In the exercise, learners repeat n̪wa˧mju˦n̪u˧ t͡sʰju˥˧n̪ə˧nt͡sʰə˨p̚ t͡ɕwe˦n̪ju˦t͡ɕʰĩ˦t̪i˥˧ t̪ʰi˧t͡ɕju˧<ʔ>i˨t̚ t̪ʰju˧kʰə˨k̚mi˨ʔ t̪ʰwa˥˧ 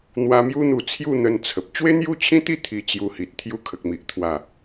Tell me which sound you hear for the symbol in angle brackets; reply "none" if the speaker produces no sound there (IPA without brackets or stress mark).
h